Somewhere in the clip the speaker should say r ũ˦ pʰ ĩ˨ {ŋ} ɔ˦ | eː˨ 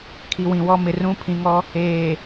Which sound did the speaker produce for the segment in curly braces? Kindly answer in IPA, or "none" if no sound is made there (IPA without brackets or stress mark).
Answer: ŋ